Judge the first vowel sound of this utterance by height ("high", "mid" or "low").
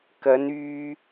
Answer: low